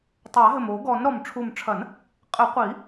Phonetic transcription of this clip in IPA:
tˤ a˨˩˦ ɦ ɘ˨˩ m o˨˩˦ ɡ ɔ˨˩˦ n ɾ ɔ˨˩ m ʈ͡ʂʰ u˨˩ m ʈ͡ʂʰ ɐ˨˩˦ n | qʼ ɘ˨˩˦ qʷ i˨˩˦

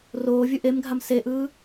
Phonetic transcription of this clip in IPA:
r oː vʲ u ʔ e m ɡʱ a m s e ʔ ɯː

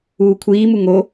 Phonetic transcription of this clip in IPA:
uː kʷʰ iː m u ŋ o

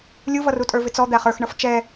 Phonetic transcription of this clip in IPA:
lʲ u v ʌ r u tʼ ə˞ v ɪ t͡s ɔ d̪ æ χ ə˞ x ɳ ʌ f t͡ʃ ɛ

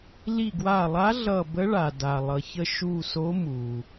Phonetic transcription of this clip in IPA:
l i˧˩ ɡ w a˧˩ lˠ a˧˥ ɮ ʌ˧˩ b ə˧˥ ɭ a˩ d a˩ lˠ ʌ˩ ç ə˧˩ ʃ u˧˩ s o˧˥ m u˩

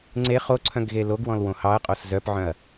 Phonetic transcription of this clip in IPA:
ŋ͡ǀ e χ o ǀʰ œ̃ ɡ ɣ e l o ɡ w ɔ̃ l w õ h ɑ ɐ̯ qʼ o s z œ p ʕ œ̃ ɐ̯

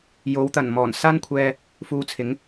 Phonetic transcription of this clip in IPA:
j o˨˥ w t̪ ɐ˨˩ n m ɔː˨˩ n s aː˥ n kʷʰ ɛː˧ | f uː˧ t͡sʰ ɪ˨˥ ŋ

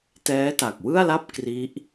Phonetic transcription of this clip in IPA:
t ɛː˦˥ t a˨˩ k̚ w ɯ˥˩ a̯ l a˥˩ p̚ k r i˦˥ ʔ

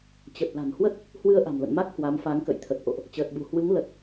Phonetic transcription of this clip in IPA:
t͡ɕ ə˨˩ t̚ l a̤˨˩ n h w ə˦˥ t̚ | h w ɨ˧ ə̯ ʔ a̤˨˩ m l ə̰˧˨ n m a˦˥ k̚ h w a˨˦ m f a˨˦ ŋ k ə̰˧˨ j t̪ʰ ə˨˩ t̚ ʔ o̰˧˨ ʔ | t͡ɕ əː˨˩ t̚ ɓ ṳ˨˩ h w ɨ˨˦ ŋ l ə˨˩ t̚

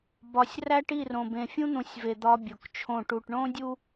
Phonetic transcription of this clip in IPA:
b ɒ˨ sʲ r æ˦ ʈ i˦˨ r õ˨ b ẽ˨ fʲ ũ˦ n̪ ũ˨ sʲ v e˨ d̪ ɒ˦ bʲ o˨ k t͡ʃʰ õ˦˨ ʈ u˨ ʈ ɳ õ˦ dʲ u˦

